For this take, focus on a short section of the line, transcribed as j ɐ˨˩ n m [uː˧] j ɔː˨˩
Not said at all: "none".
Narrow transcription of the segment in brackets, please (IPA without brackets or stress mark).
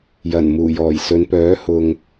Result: uː˨˩